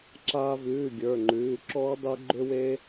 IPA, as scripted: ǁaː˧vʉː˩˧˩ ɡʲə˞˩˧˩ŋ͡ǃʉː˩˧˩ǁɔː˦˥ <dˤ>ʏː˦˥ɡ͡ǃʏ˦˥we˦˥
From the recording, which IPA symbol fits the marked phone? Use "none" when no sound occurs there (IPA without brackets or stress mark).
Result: dˤ